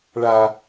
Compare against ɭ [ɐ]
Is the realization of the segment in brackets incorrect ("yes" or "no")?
yes